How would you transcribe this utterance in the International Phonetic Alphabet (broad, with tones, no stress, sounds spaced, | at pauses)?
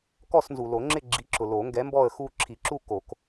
k ɔ˦˨ s n z u˨ l o˨˩˦ ŋ͡ǁ ɪ˦˨ ɡ͡ǁ i˨˥ ǁ ʊ˨ l o˨˩˦ ŋ ɡ ɛ˨˥ m b ɔ˦˨ ə̯ x u˦˨ ǁʰ i˨˩˦ ǁ u˦˨ k o˨˩˦ k